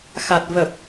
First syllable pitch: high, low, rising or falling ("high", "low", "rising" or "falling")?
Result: low